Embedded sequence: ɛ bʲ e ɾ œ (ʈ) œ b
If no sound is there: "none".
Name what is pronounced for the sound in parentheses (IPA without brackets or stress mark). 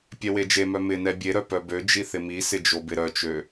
p